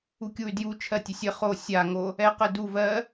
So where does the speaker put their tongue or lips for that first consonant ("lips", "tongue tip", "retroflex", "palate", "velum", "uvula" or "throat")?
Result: velum